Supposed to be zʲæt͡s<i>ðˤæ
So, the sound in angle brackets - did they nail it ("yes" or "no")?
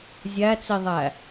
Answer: yes